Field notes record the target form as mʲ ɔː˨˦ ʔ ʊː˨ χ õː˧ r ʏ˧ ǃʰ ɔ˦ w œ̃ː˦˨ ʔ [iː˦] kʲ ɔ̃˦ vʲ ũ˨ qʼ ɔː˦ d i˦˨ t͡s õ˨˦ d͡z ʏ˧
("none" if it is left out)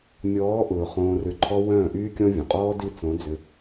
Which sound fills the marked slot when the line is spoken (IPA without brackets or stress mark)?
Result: yː˦